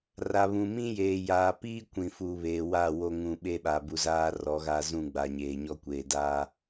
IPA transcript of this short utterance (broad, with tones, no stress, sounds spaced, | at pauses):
r a˨ β ũ˨ m ĩ˦ j eː˨ j aː˨ p iː˦ kʷ ĩ˨ f u˨ β eː˨ w a˦˨ w o˦ ŋ ũ˨ ɓ e˦ ɓ a˨ b u˨ z aː˦ r ɔ˨˦ ɣ aː˦ z ũ˦˨ ɡ͡b a˨ ɲ eː˨ ɲ ɔ˦ kʷ eː˨ d aː˦